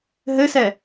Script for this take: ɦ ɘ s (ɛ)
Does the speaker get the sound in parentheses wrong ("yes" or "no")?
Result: no